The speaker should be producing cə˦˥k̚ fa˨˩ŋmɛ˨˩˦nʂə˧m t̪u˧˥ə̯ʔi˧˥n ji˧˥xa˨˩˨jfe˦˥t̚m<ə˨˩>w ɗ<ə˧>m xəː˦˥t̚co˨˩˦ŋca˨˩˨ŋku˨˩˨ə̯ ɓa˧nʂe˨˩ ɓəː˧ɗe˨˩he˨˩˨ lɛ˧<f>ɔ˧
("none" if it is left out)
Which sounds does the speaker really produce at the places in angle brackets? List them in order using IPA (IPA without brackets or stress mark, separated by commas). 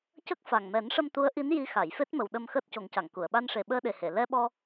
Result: ə˨˩, ə˧, ɓ